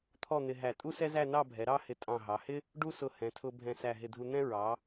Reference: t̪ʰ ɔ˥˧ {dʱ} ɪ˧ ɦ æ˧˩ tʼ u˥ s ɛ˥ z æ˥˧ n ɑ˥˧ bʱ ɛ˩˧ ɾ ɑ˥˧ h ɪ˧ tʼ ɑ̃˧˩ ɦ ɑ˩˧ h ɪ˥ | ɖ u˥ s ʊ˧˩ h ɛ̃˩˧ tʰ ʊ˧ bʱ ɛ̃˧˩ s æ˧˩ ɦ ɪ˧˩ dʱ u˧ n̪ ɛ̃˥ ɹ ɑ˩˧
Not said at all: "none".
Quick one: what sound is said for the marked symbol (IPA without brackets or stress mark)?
n̪